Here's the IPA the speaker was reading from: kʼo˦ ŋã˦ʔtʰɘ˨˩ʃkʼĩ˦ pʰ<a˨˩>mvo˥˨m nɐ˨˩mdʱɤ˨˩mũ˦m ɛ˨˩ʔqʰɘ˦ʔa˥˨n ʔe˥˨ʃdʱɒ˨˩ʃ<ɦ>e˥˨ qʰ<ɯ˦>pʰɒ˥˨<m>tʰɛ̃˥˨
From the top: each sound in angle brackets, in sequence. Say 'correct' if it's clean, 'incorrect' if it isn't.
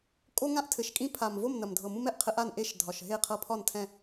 correct, correct, incorrect: ɤ˦, incorrect: n

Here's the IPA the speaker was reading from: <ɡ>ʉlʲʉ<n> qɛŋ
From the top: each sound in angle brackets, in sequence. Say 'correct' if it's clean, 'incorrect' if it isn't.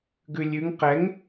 correct, incorrect: ŋ

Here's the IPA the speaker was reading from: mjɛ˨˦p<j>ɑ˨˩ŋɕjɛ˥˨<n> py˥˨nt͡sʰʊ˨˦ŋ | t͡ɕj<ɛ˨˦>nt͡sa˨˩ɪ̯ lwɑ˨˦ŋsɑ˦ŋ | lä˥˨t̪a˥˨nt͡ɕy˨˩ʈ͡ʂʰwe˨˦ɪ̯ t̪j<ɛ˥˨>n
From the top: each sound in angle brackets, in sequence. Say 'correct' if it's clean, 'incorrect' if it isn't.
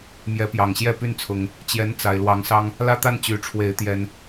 correct, incorrect: none, correct, incorrect: ɛ˦

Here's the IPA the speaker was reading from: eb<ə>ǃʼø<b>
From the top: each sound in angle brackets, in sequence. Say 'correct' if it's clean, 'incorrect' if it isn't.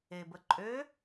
correct, incorrect: none

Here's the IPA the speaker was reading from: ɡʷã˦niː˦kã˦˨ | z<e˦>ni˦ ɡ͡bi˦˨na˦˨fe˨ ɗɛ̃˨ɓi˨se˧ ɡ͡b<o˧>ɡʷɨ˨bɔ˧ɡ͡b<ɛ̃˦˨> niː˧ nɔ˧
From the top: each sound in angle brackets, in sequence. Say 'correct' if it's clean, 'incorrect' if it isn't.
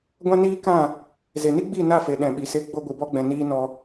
incorrect: e˨, correct, incorrect: ɛ̃˨

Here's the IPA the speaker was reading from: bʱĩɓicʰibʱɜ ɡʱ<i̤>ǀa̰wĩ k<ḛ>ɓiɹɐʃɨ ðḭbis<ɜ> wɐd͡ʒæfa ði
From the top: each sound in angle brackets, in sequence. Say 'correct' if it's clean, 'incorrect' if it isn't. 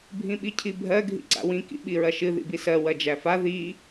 incorrect: ḭ, incorrect: ḭ, correct

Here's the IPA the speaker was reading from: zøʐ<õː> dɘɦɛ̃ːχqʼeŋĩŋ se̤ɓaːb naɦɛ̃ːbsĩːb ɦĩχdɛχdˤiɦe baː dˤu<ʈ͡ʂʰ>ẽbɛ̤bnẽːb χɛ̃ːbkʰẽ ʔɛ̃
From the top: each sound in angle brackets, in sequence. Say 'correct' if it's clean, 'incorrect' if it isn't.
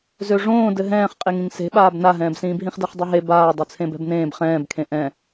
correct, incorrect: t͡sʰ

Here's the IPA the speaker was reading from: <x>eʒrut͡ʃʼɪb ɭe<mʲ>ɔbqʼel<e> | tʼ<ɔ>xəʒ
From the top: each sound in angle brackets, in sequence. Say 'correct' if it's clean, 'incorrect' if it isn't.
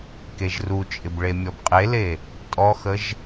incorrect: k, correct, correct, correct

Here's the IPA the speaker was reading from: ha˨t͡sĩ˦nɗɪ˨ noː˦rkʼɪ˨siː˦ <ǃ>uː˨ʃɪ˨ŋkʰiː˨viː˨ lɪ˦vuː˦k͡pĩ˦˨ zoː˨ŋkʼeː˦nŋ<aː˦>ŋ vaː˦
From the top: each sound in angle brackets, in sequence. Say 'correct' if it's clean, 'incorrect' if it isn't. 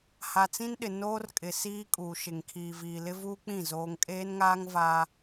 incorrect: kʼ, correct

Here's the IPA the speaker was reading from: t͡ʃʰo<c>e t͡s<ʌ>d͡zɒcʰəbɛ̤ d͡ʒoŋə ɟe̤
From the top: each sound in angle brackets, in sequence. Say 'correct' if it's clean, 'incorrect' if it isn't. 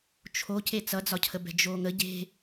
correct, correct

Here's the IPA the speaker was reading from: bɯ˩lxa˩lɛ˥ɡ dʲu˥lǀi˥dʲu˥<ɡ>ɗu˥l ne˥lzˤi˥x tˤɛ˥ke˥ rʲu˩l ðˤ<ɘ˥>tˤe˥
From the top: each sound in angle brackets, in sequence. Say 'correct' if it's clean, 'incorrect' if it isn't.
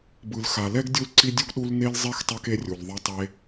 correct, incorrect: ɛ˥

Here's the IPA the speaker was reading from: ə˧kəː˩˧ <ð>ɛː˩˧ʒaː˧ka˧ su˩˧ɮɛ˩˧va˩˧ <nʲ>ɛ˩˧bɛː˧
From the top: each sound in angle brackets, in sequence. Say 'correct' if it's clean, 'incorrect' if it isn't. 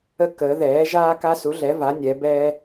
correct, correct

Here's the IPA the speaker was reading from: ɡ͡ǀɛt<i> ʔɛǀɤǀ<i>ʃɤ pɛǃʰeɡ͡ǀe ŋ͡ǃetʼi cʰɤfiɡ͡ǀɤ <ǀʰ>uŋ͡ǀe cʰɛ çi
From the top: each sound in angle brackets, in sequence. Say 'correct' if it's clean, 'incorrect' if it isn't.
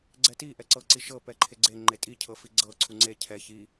correct, correct, correct

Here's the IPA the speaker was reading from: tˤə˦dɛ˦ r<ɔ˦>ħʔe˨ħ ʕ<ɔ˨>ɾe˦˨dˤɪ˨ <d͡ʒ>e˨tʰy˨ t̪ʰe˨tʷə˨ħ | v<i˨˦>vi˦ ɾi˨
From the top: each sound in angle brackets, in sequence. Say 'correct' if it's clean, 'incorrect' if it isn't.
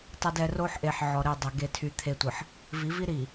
incorrect: o˦, correct, incorrect: ɡ, correct

